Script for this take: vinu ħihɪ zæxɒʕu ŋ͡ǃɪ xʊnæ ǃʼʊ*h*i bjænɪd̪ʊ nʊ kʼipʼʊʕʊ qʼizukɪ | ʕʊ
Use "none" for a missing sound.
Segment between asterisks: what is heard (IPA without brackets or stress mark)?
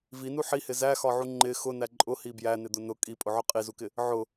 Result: h